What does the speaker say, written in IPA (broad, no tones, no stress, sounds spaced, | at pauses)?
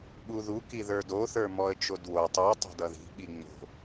ɓ u ð u k i ð ə˞ d o θ ə˞ m ɔ ə̯ t͡ʃ o d w o tˤ u tˤ o̤ d ʌ ð i̤ ɓ i ŋ͡m o̤